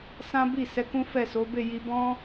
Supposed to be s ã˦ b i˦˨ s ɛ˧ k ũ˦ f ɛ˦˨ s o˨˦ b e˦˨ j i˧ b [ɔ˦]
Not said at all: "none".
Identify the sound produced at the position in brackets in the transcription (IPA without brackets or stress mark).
ɔ̃˦